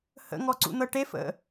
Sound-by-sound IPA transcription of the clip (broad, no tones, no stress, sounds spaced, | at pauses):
h ə̰ ŋ ɔ ǀ ṵ n̪ ɤ ʈ e f ə̰